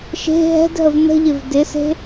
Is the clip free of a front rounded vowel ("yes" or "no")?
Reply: yes